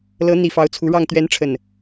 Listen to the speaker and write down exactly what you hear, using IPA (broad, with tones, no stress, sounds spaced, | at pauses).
l ɤ˨˦ n̪ i˨˩ f ɑ˨˦ ʊ̯ t͡sʰ u˨˦ ɻ ɑ˥˨ ŋ t̪ ɥ ɛ˨˦ n ʈ͡ʂʰ ə˨˩ n